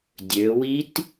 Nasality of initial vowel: oral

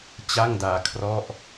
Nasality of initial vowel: oral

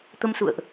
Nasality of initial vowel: oral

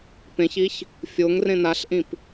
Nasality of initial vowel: nasal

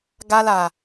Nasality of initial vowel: oral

